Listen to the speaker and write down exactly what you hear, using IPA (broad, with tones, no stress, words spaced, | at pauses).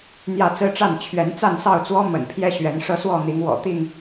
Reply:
n̪jä˥˨ t͡sɹ̩˦ʈ͡ʂa˥˨n t͡ɕʰɥɛ˨˦n t͡sa˥˨nsɑ˥˨ʊ̯t͡swɔ˦ mə̰˨˩npʰjɛ˦ ɕɥɛ˨˦nʂɤ˦swɔ˥˨ n̪i˨˦ŋwɔ̰˨˩ t̪i˥˨ŋ